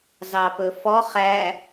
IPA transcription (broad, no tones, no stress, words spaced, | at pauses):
zɑpɵfɔ χæ